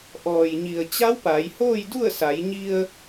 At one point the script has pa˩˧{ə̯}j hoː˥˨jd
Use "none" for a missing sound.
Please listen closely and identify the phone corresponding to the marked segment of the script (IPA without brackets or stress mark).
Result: none